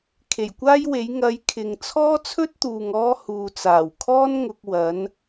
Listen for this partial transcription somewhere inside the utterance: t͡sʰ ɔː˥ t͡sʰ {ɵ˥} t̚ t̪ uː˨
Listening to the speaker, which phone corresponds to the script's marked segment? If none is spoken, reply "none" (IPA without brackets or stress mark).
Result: ɵ˥